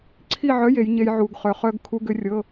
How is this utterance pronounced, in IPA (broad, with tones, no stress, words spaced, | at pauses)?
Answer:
ǀʰi˥˧ʕœ˧˥˧j e˨˥jɲe˦˥j ʕu˨ɡχœ˨χœ˦˥ɡ kʰu˧˥˧ɡʏ˨˥rʲɤ˧˥˧